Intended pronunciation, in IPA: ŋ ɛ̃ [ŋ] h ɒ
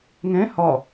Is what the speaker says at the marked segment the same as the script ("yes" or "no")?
no